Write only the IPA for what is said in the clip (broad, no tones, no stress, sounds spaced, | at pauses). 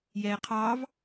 j ɛː qʰ ɑ v